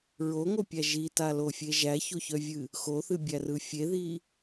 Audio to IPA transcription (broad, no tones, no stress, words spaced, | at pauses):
ɹoŋopʲæ ʒitalofʲe ʒæçoçœvʲɨ | xoθɨbʲærɯ fʲeði